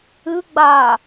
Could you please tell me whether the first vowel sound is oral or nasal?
oral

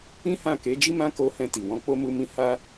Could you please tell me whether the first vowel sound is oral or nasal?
nasal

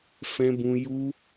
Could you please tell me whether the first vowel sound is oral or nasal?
nasal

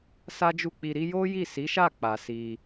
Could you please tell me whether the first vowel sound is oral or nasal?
oral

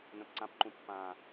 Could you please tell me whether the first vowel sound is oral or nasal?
nasal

